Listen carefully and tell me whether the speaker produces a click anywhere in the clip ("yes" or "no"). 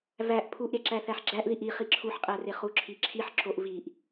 yes